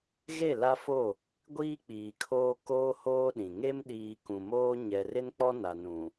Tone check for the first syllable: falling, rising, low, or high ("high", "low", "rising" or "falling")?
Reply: falling